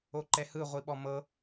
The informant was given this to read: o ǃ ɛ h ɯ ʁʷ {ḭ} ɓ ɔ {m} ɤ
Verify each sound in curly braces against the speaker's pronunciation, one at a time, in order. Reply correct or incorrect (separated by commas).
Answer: incorrect, correct